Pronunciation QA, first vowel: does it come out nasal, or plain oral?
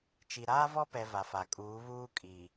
oral